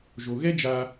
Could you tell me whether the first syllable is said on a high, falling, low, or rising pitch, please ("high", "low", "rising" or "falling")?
low